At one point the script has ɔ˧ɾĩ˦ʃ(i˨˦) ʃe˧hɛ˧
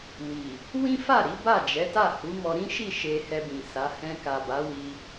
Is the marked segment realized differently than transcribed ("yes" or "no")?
yes